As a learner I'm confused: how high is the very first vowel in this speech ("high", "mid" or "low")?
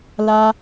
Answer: low